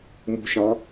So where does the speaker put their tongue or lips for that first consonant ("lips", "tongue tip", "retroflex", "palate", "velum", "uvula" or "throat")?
lips